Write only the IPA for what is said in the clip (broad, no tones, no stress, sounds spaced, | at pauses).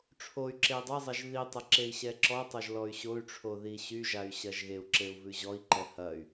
ʈ͡ʂʰ o y̯ ǁ e i̯ dˤ ɐ zˤ ɐ ʒ ð i tˤ ɐ ǁ e i̯ ɕ ɛ ǁ ɔ tˤ o ʒ l ɔ y̯ ɕ o y̯ ʈ͡ʂʰ o ð i ɕ y ʒ a y̯ ɕ ɐ ʒ ɣ e u̯ ǁ e u̯ v ʉ ʑ ɔ i̯ ǃ ɛ h ɐ y̯